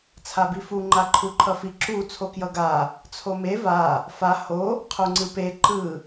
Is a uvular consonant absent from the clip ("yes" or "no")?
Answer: no